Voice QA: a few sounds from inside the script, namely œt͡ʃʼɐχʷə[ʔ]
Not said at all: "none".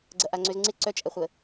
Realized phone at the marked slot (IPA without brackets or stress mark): none